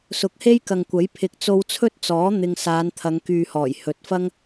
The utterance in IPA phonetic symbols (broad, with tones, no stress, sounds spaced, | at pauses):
s ʊ˨˥ k̚ h e˥ j k ɐ˨ ŋ kʷ ɐ˨˥ j pʰ ɪ˨ k̚ t͡s o˧ w t͡sʰ ɵ˥ t̚ t͡s ɔː˨˥ n̪ ɪ˧ ŋ s aː˨˧ n t̪ʰ ɐ˨˧ ŋ k yː˨ h ɔː˨˩ j h ɵ˨ t̚ f ɐ˥ ŋ